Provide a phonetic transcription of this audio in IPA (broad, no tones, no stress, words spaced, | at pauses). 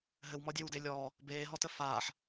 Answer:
ɦɘwmɔdʲewde lʲɔː | beːɦɔtə faːħ